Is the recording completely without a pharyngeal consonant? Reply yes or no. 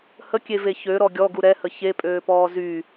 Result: yes